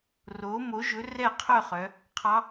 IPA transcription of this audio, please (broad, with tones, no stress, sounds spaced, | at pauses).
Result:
r oː˩˥ m o˩˥ ʒ ɵ˩˥ r ɛː˥˨ qʰ œ˥˨ χ œ˩˧ | qʰ ɑ˧˥